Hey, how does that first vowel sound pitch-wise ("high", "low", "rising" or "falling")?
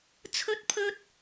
high